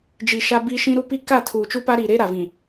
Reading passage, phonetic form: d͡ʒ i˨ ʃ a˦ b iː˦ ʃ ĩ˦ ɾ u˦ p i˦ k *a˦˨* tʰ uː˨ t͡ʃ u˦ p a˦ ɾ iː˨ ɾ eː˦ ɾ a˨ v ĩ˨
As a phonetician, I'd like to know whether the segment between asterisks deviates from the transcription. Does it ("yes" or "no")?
no